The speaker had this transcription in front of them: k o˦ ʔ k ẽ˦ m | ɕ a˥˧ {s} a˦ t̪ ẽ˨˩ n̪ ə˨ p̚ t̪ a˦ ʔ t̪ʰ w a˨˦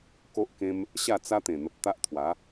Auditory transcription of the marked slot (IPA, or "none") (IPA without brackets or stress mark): t͡s